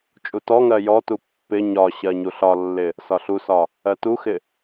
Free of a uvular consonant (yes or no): yes